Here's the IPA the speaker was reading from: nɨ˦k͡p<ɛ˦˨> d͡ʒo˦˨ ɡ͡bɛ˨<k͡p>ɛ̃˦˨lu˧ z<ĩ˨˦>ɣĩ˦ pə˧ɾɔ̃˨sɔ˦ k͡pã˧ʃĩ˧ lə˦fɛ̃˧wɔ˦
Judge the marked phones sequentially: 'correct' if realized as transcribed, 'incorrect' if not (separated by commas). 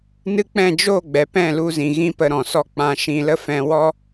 incorrect, incorrect, incorrect